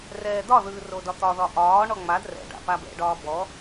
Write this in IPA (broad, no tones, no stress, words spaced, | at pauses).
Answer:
rɛːd̪ɒðɯː rodɒt̪ɒðɒ ʔɒːɳɔ ŋ͡mad rɛ̰ɖa̰ pabɛ̰ɖɒː bɔ